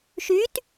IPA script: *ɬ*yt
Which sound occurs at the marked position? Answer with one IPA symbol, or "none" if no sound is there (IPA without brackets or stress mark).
ʃ